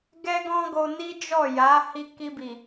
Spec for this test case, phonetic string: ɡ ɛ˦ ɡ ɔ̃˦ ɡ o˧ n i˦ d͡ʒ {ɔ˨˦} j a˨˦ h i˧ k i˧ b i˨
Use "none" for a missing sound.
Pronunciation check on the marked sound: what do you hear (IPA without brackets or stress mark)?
ɔ˦˨